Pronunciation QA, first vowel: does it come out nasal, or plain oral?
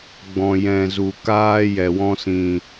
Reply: nasal